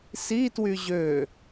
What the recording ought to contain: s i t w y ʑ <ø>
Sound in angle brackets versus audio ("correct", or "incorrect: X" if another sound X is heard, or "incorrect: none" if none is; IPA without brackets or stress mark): correct